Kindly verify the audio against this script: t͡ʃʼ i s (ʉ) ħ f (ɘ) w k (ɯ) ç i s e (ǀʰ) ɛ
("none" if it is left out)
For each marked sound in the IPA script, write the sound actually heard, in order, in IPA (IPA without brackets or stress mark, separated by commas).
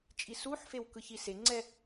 u, e, ɯ, ŋ͡ǀ